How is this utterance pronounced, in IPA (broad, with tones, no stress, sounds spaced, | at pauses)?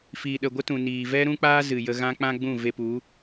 f iː˨ ɗ ə˨ ɡʷ ə˦ t ũ˨ n iː˨ v ɛ˦ ɾ ũ˦ k͡p aː˦ z ɨ˨ j ə˧ ɣ ã˦ k͡p ã˦ ɡ͡b ũ˦˨ v e˧ p u˨˦